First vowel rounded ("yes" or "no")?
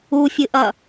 yes